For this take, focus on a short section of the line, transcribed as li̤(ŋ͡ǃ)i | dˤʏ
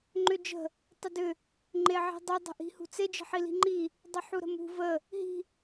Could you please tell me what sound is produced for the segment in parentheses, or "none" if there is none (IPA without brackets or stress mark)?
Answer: ŋ͡ǃ